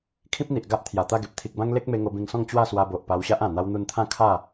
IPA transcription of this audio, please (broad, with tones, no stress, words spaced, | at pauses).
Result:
kʰĩ˦p̚n̪i˨ʔ ɡa˦ʔt̪ʰja˨˩t̪a˥˧ɡe˨p̚ t̪ʰi˨k̚bã˦ŋ le˦k̚me˧ ŋo˧bĩ˧ŋsɔ̃˥˧ŋ t͡ɕwa˥˧swa˧bo˨ʔ pa˧wɕa˦ʔã˨˩ n̪a˧wn̪u˧nt̪ʰã˥˧ kʰa˥˧